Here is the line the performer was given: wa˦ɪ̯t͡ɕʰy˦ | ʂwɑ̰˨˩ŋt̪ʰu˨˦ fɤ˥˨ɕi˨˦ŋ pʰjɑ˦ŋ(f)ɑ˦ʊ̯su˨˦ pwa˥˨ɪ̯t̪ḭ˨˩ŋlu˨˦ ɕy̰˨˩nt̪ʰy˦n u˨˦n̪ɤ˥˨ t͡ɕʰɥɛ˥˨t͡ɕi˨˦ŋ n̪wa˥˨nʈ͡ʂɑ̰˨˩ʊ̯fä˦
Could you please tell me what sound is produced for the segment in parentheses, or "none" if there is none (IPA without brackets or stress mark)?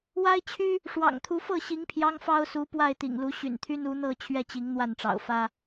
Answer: f